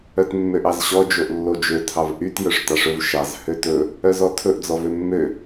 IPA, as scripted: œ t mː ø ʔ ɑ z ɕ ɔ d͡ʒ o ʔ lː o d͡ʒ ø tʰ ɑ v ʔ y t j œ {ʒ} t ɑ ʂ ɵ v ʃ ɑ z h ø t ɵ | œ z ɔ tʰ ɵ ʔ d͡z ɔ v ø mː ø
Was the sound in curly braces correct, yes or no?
no